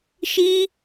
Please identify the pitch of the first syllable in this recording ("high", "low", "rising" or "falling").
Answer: high